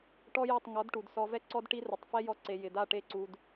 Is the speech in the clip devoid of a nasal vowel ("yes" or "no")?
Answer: yes